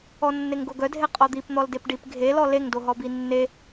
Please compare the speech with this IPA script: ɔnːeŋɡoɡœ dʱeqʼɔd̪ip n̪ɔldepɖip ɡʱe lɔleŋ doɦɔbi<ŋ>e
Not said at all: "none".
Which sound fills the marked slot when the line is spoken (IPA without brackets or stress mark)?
nː